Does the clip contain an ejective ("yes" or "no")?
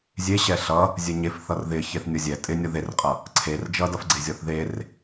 yes